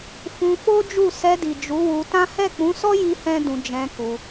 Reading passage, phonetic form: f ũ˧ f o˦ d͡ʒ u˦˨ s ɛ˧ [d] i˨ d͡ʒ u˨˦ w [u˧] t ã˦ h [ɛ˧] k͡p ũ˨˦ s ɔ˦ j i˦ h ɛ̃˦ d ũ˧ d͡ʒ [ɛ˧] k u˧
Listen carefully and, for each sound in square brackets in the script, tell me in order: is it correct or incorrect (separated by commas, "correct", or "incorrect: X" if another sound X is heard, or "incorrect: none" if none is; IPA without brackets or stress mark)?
correct, correct, incorrect: ɛ˦˨, incorrect: ɛ̃˧